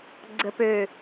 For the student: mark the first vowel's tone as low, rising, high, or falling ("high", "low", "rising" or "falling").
low